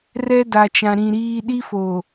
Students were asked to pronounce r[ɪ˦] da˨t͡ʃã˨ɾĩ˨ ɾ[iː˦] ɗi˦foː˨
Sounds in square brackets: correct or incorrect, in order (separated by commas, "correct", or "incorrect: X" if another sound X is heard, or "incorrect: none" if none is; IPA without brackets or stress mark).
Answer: incorrect: ɛ˦, correct